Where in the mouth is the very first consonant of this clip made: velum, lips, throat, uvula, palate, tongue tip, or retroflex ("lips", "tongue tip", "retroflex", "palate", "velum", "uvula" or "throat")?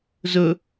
tongue tip